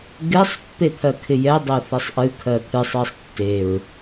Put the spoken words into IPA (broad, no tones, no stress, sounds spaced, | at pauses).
ɡ ɪ sˤ pː e t̪ʰ ɜ kʰ ɪ j ɛ dˤ ɜ θ ɛ sˤ ʔ ɨ kʰ ɜ t̪ʰ ɨ sˤ ɜ sˤ tː e ɹ